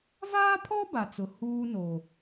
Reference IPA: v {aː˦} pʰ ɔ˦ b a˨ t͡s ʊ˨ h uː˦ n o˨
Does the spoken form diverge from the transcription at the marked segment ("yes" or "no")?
no